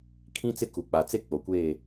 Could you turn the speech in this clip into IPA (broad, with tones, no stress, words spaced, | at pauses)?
kʰĩ˦ t͡sɪ˦ku˨k͡pa˨ t͡se˦ k͡po˨kʷeː˦˨